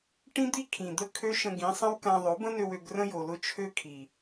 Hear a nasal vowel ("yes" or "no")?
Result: yes